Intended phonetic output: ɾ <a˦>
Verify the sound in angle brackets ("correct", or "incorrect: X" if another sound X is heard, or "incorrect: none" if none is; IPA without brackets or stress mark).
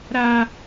correct